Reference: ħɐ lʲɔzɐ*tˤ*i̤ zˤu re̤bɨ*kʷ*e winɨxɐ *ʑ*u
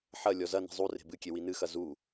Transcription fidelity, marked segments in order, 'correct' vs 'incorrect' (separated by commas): incorrect, incorrect, incorrect